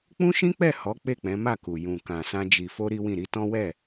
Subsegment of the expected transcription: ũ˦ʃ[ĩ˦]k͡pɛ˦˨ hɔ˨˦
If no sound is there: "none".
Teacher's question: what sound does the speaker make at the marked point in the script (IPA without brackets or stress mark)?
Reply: ĩ˦